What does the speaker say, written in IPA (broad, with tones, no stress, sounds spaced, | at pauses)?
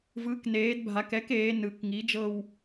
v ɯ˩˥ k n eː˩˧ d bʱ a˩˧ k ɛ˩˥ k eː˩˧ n ɯ˩˧ k ŋ i˩˥ d͡ʒ ɤ˦˨ w